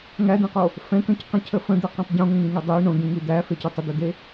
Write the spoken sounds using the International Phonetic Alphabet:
ŋ æ d̪ ɛ̃ q o | f ɛ̃ k ə̃ c q ə̃ cʰ ə f ə̃ d̪ e q ɛ̃ tˤ ɟ õ ŋ ə̃ ŋ ĩ ŋ e dˤ e i̯ ɳ õ d̪ ĩ ŋ i d̪ æ f e c ɛ tˤ ə d̪ ɛ d̪ e

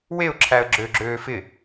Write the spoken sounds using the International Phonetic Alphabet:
w e ʊ̯ ǁʰ æ ə̯ ɡ͡ǁ ø ɡ͡ǁ øː f ɪ

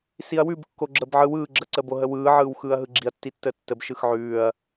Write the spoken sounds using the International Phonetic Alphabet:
s i ɐ̯ w ʉ b kː o ɡ͡ǁ əː b ʕ ɯ w ɯː ɡ͡ǁ ə ǀ əː b o ɦ ə w ɯː ʕ ɯː w x ɯː ɐ̯ ɦ ɯ ɡ͡ǁ i ɐ̯ tː i tː əː tː ə b ʃ ɯ x ʕ ʉː ɐ̯

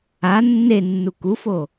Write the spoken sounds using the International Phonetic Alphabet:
a nː e nː u k u f o

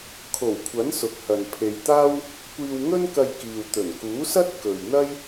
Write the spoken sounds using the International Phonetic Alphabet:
kʰ o˨˩ w kʷʰ ɐ˨˥ n s ʊ˨ k̚ h ɐ˨ n pʰ e˧ j t̪ aː˥ w | kʷ iː˧ w ŋ ɵ˥ n k ɐ˧ j k iː˨ w t̪ ɵ˨˩ n k uː˨˥ s ɐ˥ t̚ k ɵ˨ ɥ n̪ ɐ˥ j

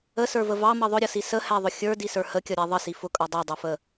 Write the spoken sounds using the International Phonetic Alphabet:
ə s ə˞ v ə v ɑ m ʌ ðˤ ʊ ɾʲ ʌ s i s ə h æ ðˤ ʊ xʲ ə˞ d i s ə˞ h ə kʲ ʌ ɾʲ æ ðˤ ə s i f ʊ kʼ ʌ dˤ i dˤ ʊ f ə

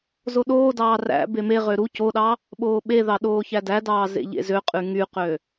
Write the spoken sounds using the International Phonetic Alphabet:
z o ɗ oː d ɑː r æ̰ b e m e ʁ ø ɾ u c o ɗ ɑ | ɓ oː ɓ e ð ɑ ɗ oː ç æ d æ d ɑː z ḛ ʎ ḛ z ø qʼ y ŋ y q ø

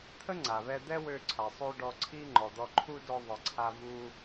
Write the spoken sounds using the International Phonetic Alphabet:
t̪ʰ ə˥ ŋ͡ǀ a˩ β ɛ˧ d̪ ɛ˥ w ø˧ ǀʰ a˩ sˤ ø˧ ɖ ɔ˧ ǀʰ i˥ ŋ͡ǃ ɔ˩ d̪ ɔ˧ ǃʰ u˥ d ɔ˧ ðˤ ə˩ ǀʰ a˧ v u˥

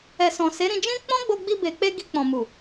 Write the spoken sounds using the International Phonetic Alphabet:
ɛ˨ s ɔ̃˨ s e˨˦ ɾ ĩ˧ d͡ʒ ĩ˦ k͡p ɔ̃˦ ɡ͡b o˧ ɡ͡b i˧ b e˨ k͡p e˧ ɡ i˧ k͡p ɔ̃˨ m u˨

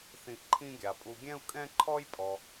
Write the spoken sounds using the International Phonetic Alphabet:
θ ĩ˧ ʔ ǃʰ ĩ˥ ɡʲ a˩ pʼ u˧ ɡʲ ɛ̃˥ u̯ kʼ ɛ̃˥ ǃʰ ɔ˥ j pʼ ɔ˩

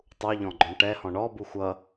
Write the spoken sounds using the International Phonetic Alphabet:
tˤ u ʎ ɔ̃ ɡ͡ǃ ɔ̃ ɳ ʈ ɛ h ɔ̃ ɳ ɔ b u xʷ ʌ

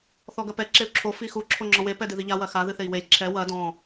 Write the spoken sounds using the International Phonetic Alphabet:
θ ɔ ɡ ɐ p ɛ ǁ e u̯ ǁʰ o f i x u ǁʰ o ŋ͡ǁ ɔ̃ w e p ɛ d ɨ ð i ʎ a w ɐ x a ð ɨ θ e i̯ w e lʲ ǁʰ ɛ w ɐ d ɔ̃

